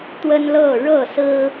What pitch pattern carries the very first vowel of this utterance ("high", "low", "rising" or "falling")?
high